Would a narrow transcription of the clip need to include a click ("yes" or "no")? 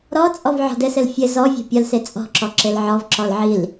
yes